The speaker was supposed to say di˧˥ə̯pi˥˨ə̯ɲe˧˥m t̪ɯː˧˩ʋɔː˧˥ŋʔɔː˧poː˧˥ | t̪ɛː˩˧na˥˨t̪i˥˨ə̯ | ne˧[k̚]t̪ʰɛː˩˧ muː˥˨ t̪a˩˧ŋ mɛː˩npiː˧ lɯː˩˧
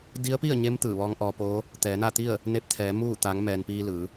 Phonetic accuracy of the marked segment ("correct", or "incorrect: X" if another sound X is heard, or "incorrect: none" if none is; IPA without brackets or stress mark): incorrect: p̚